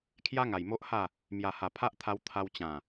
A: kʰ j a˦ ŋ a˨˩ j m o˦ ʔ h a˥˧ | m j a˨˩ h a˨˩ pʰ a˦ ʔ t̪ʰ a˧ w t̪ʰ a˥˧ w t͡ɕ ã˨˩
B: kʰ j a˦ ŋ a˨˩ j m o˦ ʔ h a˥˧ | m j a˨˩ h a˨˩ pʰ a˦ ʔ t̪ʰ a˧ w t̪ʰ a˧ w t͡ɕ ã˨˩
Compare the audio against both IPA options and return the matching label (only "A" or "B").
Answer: B